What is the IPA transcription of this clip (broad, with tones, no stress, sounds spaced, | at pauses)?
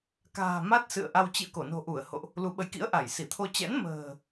k a̤ː˨˩ m a˦˥ t̚ s ɨ̰˧˨ ə̯ ʔ a˧ w t͡ɕ ḭ˧˨ ə̯ k o˧˩ n o̤˨˩ ʔ u˧˩ ə̯ h o̰˧˨ ʔ | l u˨˦ ɓ ə˨˦ j k ḭ˧˥ ə̯ ʔ a˧˩ j s i˧˩ t̪ʰ o˧ t͡ɕ ɛ̰˧˥ n m ə̤ː˨˩